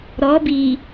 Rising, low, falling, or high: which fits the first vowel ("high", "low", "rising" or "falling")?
rising